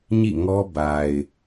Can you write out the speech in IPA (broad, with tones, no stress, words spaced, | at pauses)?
ɲḭ˦˨ŋɔ˦ ba˨ɪ̯